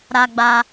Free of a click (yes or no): yes